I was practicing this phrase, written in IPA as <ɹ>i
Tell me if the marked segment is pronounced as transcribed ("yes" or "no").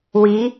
no